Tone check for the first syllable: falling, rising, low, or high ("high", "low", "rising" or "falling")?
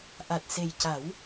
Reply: low